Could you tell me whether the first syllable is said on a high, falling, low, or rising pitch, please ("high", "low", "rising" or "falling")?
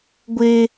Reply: high